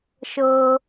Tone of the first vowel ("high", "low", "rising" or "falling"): low